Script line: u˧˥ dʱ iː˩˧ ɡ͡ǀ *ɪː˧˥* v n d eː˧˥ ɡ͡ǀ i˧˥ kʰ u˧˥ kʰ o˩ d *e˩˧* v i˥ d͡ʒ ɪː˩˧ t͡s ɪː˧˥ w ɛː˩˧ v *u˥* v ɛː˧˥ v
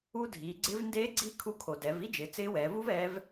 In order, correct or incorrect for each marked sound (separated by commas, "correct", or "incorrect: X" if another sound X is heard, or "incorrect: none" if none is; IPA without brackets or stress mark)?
incorrect: ɪ˧˥, incorrect: ɛ˩˧, correct